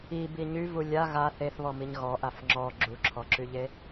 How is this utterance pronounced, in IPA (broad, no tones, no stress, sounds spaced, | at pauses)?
i b i ɲ y v u lʲ a ɣ a θ e θ β ɔ m i ɲ ɣ ɔ ʔ a f ŋ͡ǁ ɔ ɡ͡ǁ u ǁʰ ɔ ǁ y ʎ e